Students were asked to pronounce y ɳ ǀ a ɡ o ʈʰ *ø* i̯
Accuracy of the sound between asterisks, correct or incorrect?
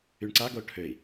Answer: correct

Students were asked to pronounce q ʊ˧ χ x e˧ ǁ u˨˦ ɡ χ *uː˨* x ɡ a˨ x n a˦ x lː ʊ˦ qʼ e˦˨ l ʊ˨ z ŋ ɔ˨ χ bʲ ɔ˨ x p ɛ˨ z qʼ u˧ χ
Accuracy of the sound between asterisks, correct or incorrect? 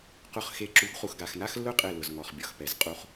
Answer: incorrect: u˨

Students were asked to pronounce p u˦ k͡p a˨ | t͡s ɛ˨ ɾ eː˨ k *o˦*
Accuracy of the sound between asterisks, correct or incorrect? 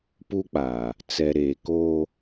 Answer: correct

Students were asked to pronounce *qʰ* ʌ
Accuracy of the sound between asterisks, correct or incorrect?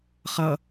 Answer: incorrect: χ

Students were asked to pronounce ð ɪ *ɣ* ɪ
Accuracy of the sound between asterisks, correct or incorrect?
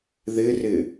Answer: incorrect: r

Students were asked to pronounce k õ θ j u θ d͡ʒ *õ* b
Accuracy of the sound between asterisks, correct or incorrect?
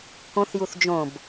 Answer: correct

